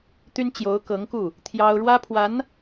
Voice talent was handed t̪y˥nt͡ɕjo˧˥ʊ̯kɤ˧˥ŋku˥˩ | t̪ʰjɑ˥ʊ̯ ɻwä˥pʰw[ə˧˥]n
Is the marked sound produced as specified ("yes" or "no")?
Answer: no